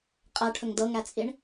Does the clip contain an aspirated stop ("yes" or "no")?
yes